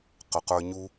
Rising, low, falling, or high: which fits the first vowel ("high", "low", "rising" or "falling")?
low